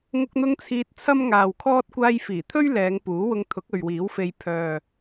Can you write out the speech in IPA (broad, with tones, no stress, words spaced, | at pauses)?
ŋʊ˧k̚n̪ʊ˧ŋ t͡sʰiː˧t̚t͡sʰɐ˥mŋaː˨wkʰɔː˥t̚ kʷaː˧jfiː˨˩t̪ʰɵ˥ɥ lɛː˨˧ŋ puː˨˥wʊ˧ŋ t̪ʰʊ˨˥k̚ɵ˨ɥwiː˨˥wfe˧j pʰœː˨